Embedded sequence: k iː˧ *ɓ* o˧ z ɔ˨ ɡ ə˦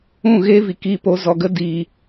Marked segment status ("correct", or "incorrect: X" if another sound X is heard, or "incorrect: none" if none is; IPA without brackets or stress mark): incorrect: p